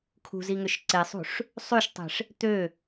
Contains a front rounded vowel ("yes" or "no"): yes